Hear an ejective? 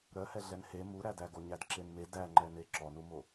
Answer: no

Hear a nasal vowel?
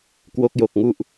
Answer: no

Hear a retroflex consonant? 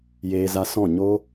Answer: no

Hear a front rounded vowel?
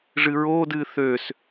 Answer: yes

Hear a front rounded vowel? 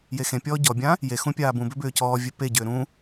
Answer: yes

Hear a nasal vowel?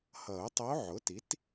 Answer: no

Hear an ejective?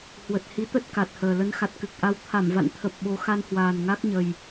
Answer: no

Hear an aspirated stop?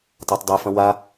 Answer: no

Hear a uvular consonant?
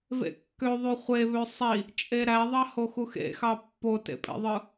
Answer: yes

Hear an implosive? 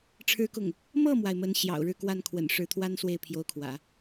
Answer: no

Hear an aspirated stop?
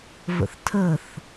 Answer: yes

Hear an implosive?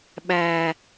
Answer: yes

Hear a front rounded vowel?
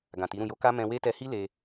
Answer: no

